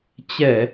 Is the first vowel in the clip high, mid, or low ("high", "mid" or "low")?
mid